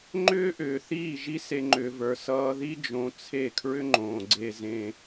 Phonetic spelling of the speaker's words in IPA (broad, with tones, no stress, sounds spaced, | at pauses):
ŋ͡ǃ ʏː˦ ʔ ʏː˨ θ iː˦˨ ʒ i˦ s e˧ ŋ͡ǃ ʏː˨ v ə˞˨ s ʌː˧ ð i˦ d͡ʒ õ˧ t͡sʰ e˦˨ kʰ ɹ ʏ˦ ŋ͡ǃ õː˨ ɡ͡ǀ e˧ z ẽ˧